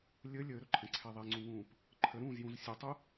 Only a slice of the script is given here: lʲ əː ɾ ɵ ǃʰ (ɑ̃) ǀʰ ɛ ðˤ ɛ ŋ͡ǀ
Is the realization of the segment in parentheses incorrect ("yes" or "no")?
yes